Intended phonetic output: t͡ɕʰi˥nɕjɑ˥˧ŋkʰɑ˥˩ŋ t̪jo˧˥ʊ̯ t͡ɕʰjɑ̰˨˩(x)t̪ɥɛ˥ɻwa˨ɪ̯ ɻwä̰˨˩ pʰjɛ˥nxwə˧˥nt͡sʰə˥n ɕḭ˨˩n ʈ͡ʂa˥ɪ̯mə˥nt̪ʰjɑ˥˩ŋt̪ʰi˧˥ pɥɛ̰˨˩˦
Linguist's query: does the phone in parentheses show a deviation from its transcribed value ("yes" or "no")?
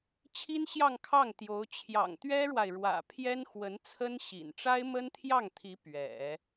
yes